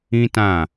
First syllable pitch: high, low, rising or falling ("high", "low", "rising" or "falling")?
high